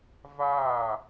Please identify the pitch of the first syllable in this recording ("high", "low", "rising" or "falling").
falling